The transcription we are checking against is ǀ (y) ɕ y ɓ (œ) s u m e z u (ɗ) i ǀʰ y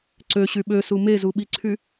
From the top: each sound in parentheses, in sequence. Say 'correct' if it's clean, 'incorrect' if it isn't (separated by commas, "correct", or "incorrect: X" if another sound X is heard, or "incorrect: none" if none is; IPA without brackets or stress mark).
incorrect: ø, incorrect: ø, incorrect: ɓ